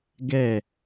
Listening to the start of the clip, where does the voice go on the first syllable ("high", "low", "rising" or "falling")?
falling